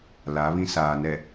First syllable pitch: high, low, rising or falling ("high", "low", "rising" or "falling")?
rising